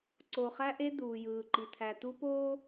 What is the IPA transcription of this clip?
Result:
ǀ o˨ χ æ˦ ʔ e˦ d̪ uː˨ j ɯː˨ ǃ i˨ t̪ʰ æ˨ t̪ u˦ p oː˦

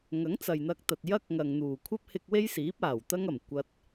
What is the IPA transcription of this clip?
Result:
ŋ ɐ˨˥ ŋ t͡s ɐ˨ j n̪ ɐ˧ k̚ t̪ ɐ˨ t̚ j ɐ˥ k̚ ŋ ɐ˨ ŋ n̪ uː˨˩ kʷʰ ɐ˥ p̚ h ɪ˧ k̚ w e˥ j s iː˨˥ p̚ aː˨˩ w t̪ ɐ˥ ŋ ɐ˨˩ m kʷ ɐ˧ t̚

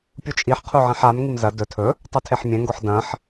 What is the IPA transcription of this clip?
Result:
pʲ u t͡ʃʼ i ħ qʰ u ʕ ẽ ħ a m ŋ i m z ɐ d ɵ tʰ ɵ | tˤ u tʰ e ħ mʲ ẽ ŋ ɡ o ħ d ɐ̃ ħ

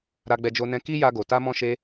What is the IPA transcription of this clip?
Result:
ɾ a˧ ɡ͡b ɛ˧ d͡ʒ o˧ n ɛ̃˧ k i˦ j a˧ ɡ o˨ t a˧ m ɔ̃˧ ʃ e˧

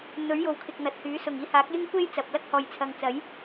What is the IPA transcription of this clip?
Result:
n̪ ɵ˨˥ ɥ j o˨ w kʰ ɪ˨ k̚ n̪ ɐ˨ t̚ h yː˨˥ s ʊ˨˩ ŋ iː˧ h aː˨˥ k̚ j ɪ˥ ŋ kʷ e˥ j t͡s ɐ˨ p̚ l ɐ˥ k̚ h ɔː˨ j t͡sʰ ɐ˨ ŋ t͡s ɐ˨˥ j

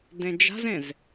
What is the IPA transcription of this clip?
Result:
d ẽ d͡ʒ a̤ z ẽ z

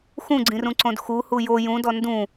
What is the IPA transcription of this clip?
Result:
x ũ ɡ͡ǀ ĩ r ũ ǀ õ d x u h u j o j ũ d ɔ n d ũ

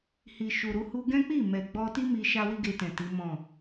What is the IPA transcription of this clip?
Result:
h i˨ ʃ u˨ ɾ u˧ h u˦ ɡ ɛ̃˦ k͡p i˦˨ m ɛ˨ ɡ͡b ɔ˧ t i˦ m i˦ ʃ a˦ w i˦ ɡ e˧ t ɛ̃˨ t i˨˦ m ɔ̃˦˨

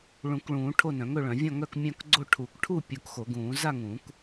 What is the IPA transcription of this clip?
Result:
ɭ ũ˨˩˦ k ɭ ũː˨˩˦ ʈʰ o˥˨ n œ̃˨˩˦ ŋ ɵ˥˨ ɭ œ̃˨˩˦ vʲ ɔ̃˥˨ ŋ œ˥˨ k mʲ œ̃˥˨ k ɡ͡ǀ o˥˨ ʈʰ u˨˩˦ k ʈʰ u˥˨ pʲ u˨˩˦ k x o˨˩˦ ɡ ũː˨˩˦ z a˥˨ ŋ ũ˨˩˦ k

